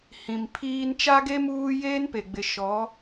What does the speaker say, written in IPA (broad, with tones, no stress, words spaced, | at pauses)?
hĩ˨mpʰiː˦n t͡ʃa˦ɡe˦ muː˦ jeː˦npe˨ɡ͡bɪ˨ ʃɔ˨˦